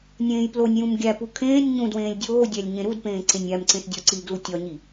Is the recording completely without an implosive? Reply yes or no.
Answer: yes